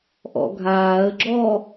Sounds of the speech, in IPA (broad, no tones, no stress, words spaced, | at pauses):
ʔɔ̰ɡʱaːə̯ɡ͡ǁɔ